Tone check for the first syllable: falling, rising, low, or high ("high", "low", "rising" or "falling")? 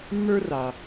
high